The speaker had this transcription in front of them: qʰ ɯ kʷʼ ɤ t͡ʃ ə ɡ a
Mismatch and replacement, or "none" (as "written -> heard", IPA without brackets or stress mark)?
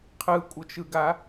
ə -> ɯ